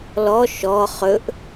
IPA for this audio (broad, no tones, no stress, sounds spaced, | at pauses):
l ɔ ʃ ɔ χ ɵ ʔ